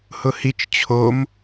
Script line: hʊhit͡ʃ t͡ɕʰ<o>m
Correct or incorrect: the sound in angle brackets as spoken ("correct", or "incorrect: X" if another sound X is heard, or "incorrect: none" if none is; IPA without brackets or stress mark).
correct